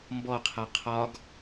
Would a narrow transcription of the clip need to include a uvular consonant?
yes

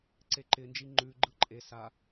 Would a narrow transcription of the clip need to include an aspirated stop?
no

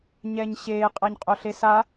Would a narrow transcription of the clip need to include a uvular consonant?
yes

